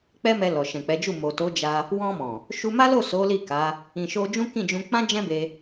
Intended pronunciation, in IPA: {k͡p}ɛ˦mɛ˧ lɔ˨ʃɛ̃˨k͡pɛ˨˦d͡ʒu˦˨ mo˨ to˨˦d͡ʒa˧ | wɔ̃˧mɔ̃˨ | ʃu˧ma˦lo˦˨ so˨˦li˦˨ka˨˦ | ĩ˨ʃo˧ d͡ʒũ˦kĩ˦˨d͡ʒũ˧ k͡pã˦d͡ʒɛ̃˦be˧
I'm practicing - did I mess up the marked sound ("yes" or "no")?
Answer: no